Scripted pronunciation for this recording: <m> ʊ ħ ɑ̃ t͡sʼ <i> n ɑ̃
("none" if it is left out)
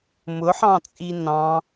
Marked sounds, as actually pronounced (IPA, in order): m, i

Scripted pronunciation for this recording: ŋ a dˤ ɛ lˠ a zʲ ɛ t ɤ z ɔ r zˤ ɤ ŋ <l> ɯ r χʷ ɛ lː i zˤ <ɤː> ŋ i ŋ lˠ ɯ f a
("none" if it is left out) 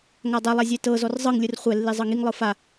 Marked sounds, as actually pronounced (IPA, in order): lʲ, ɤ

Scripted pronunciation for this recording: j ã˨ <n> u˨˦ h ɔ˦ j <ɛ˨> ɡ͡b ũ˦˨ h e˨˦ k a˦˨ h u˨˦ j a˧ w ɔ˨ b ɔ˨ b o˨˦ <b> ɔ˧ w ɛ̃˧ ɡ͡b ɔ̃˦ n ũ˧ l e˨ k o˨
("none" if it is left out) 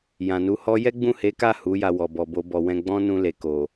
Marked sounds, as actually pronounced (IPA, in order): n, ɛ˦, b

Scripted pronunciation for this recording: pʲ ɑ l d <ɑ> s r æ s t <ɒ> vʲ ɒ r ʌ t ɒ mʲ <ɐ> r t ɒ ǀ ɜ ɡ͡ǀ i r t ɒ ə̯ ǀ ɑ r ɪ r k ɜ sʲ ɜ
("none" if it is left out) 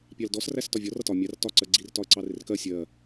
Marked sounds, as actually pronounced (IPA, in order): ɔ, ɒ, ɑ

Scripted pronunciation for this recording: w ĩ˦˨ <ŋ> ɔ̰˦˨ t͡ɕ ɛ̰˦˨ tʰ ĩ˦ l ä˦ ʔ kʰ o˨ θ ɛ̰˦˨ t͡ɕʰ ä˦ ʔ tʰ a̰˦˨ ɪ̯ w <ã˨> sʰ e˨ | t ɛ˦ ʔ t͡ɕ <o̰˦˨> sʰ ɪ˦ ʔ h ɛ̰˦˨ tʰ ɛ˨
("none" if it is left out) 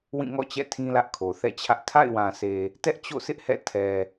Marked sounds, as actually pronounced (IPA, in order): ŋ, ã˨, o̰˦˨

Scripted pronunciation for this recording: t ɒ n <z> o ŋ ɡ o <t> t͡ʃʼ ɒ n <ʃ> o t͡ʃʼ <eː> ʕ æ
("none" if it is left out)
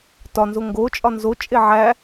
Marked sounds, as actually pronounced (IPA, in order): z, none, z, e

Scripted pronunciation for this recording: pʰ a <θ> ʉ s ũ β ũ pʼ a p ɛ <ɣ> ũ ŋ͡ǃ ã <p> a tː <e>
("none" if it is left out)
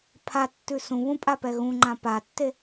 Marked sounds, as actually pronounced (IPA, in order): tː, ɣ, p, e

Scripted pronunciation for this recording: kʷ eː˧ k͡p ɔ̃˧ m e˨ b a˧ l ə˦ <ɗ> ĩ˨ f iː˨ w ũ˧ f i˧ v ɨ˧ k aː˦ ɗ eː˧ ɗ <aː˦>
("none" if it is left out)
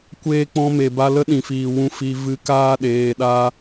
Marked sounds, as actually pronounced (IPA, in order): ɗ, aː˦

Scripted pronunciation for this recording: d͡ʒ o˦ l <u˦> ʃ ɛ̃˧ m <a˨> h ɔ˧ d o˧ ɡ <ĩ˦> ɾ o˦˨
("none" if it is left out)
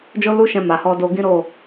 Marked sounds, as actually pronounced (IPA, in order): u˦, a˨, ĩ˦

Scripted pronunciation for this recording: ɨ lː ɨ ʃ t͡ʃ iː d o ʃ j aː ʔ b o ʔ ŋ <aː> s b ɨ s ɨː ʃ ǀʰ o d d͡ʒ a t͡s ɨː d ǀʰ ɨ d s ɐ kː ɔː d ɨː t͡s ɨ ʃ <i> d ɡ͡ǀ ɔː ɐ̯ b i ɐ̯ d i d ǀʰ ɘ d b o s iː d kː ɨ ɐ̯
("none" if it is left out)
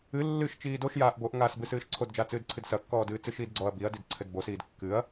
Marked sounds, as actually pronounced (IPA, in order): aː, iː

